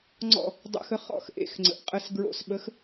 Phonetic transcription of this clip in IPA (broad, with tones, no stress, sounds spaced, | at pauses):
ŋ͡ǀ ɔ̰˧˩ | dˤ ə̰˨˥ x ə˨˥ χ ɔ̰˧˩ x ʔ ḛ˧˩ x ŋ͡ǀ ə̰˩˧ ʔ qʼ ə˧˩ s ɡ ɹ o̰˧˩ s ɓ ə˨˥ x